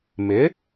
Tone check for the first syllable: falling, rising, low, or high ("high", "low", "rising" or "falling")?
rising